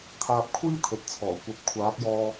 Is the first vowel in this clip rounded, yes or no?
no